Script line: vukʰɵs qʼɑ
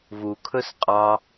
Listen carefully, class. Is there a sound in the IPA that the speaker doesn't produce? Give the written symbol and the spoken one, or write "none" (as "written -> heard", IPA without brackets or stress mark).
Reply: none